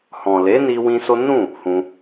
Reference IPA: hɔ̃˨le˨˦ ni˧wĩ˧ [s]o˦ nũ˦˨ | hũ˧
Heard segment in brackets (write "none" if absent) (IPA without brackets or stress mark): s